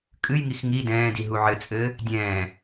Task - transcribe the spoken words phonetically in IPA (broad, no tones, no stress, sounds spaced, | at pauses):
kʼ ɨ j ŋ i x ŋ i d ɛ̃ː d i ɦ u ʕ ɘ t͡sʼ ɘː | dʲ ɛ̃ː